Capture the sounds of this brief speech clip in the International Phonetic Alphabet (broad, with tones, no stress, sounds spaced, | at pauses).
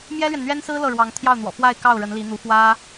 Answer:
m j ɛ˥ l ɥ ɛ˨ n n̪ ɥ ɛ˥ n s ɹ̩˥ l ɤ˥˩ ɻ w ɑ˧˥ ŋ t̪ʰ j ɑ˥˩ ʊ̯ n̪ w ɔ̰˨˩ f w a˥˧ ɪ̯ k ɑ˥˩ ʊ̯ ɻ ə˧˥ n l i˧˥ n̪ u˧˥ f w ä˥